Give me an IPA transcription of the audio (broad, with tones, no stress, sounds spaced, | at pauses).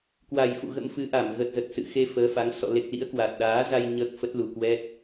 k w a˨˩ j f ṵ˧˨ ɣ ə̰˧˥ m f ɨ˨˦ ʔ a˧˩ m ɣ ə˨˩ t̚ z ə˨˩ t̚ s ɨ̰˧˨ x e˧ f əː˨˦ f a˨˦ ŋ s ɔ̰˧˨ l e˨˩ k̚ l ḭ˧˥ ə̯ k w a˨˩ t̚ ɗ aː˨˦ z a˧ j ɲ əː˦˥ k̚ f ə˦˥ t̚ l u˨˩ k w ɛ˦˥ t̚